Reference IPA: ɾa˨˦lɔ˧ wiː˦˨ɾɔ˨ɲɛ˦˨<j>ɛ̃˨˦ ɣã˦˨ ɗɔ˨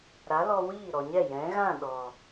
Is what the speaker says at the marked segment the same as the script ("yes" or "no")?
yes